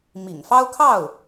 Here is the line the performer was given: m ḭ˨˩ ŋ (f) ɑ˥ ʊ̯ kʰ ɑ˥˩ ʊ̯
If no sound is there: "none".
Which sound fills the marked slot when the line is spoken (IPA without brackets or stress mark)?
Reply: f